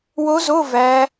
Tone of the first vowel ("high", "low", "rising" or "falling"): rising